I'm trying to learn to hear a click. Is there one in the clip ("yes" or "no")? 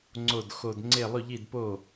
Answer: yes